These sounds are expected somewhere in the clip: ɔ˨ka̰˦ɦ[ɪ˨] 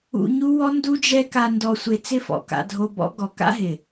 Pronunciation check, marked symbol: correct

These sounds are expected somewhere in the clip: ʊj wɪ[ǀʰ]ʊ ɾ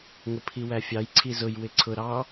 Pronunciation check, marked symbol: correct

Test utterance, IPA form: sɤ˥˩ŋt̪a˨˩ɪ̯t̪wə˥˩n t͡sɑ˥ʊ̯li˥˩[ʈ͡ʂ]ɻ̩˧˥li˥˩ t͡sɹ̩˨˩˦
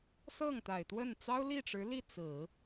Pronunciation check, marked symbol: correct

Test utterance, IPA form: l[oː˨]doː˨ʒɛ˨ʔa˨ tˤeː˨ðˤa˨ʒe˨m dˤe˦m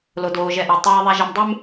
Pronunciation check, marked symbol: incorrect: o˨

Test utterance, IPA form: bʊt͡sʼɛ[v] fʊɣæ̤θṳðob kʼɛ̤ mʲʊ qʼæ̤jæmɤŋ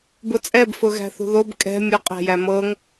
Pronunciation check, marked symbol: incorrect: b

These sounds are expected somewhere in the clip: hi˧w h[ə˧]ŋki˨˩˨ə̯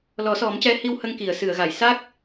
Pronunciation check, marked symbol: correct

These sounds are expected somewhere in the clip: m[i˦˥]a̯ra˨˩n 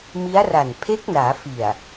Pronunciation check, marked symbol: correct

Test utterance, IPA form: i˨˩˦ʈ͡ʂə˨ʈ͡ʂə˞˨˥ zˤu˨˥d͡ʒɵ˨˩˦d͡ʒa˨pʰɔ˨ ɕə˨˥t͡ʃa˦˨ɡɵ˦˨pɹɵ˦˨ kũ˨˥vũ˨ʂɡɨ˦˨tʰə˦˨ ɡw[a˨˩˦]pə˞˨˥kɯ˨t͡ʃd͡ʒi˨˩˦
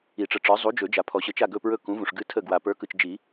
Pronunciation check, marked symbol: incorrect: a˨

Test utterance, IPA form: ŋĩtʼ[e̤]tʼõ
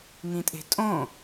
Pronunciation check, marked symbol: correct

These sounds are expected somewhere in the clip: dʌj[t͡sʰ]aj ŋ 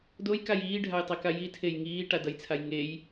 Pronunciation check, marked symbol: correct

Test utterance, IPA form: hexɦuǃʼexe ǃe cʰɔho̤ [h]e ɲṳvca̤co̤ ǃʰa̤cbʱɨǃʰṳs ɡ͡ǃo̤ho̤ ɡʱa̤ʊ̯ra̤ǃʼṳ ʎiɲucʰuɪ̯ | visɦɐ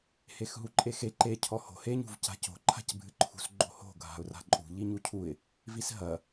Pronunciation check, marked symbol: correct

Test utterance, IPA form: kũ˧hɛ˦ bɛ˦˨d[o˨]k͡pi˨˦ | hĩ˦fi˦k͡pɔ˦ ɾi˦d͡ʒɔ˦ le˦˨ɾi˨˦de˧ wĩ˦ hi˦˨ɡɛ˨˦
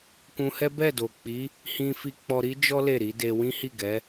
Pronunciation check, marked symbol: correct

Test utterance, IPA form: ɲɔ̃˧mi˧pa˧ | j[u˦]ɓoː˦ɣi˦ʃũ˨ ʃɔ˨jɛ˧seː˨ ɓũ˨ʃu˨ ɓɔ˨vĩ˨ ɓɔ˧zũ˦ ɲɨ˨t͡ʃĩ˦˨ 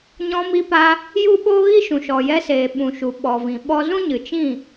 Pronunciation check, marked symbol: correct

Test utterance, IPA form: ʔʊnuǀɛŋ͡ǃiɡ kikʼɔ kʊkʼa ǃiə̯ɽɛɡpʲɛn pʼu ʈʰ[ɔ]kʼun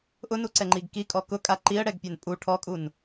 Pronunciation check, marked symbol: correct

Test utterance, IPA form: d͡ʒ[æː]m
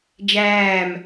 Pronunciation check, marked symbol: correct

